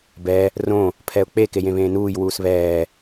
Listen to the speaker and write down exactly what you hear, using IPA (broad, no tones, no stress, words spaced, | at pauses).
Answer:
bɛ | rõ | pʰɛʊ̯k͡pe kejẽβẽːnuːj wuːsβɛː